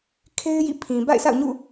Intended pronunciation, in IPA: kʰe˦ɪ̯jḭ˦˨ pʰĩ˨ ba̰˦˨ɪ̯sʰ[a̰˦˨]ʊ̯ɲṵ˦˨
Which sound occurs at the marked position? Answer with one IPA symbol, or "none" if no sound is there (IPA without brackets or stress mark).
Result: a̰˦˨